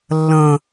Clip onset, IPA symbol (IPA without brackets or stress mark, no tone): lː